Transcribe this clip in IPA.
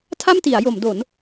tʰ a˥˩ m t i˩˦ a̯ j o˩˦ m d o˩˦ n

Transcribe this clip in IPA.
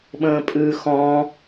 ɓ ə̃ː pʼ ʉ x ɔ̃

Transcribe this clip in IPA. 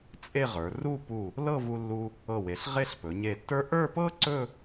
t͡sʼ e˥˧ ʁ ə˞˩˧ r u˥˧ p u˧˩ | l ɤ˥˧ v u˧ lː u˧ | ɤ˧˩ w e˩˧ ɬ ʁ e˥˧ ɬ p ɵ˩˧ ɲ e˧˩ tː ə˞˥ ʔ ə˞˥˧ p ɤ˥ ǀ ɵ˥˧

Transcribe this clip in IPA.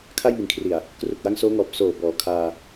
kʰ a˥˩ j m i˨˩ n kʰ r i˨˩ a̯ | k r u˨˩ k̚ w a˦˥ ŋ s oː˦˥ ŋ ɔː˨˩ p̚ s oː˨˩ b ɔː˩˦ kʰ aː˧

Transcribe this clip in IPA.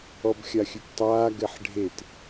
ɔ b xʲ a xʲ ʉ p tˤ aː ɡ ɛ ħ ɖʱ e t

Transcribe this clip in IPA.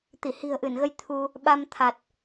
t̪ i˧˩ h i̤˨˩ ə̯ ʔ ɨ˧˩ n ɣ ə˧ j t̪ʰ u˧ | ɓ a˧ m t̪ʰ a˨˩ t̚

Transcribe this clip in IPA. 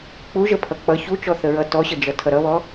k͡p u ʒ ə pʰ ʌ k͡p ʌ ç u t͡ʃ ɔ θ ə ɹ ʌ t ɔ ɕ ə d͡ʒ ʌ tʰ ʌ ɾ ʌ β ɔ

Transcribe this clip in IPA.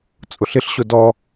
t͡sʼ ʊ ɬ ɪ ɬ ɕ ʊ d ɔ

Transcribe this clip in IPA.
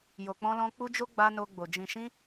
j o˨ k͡p ɔ̃˧ l ɔ̃˧ k͡p u˧ d͡ʒ o˧ ɡ͡b a˧ n o˧ ɡ͡b o˨ d͡ʒ ĩ˨ ʃ ĩ˧

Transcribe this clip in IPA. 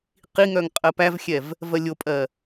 q i ŋ œ ŋ qʼ ɜ p æ v xʲ ɛ v | v ɜ lʲ o pʼ ɜ

